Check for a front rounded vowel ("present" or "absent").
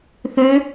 present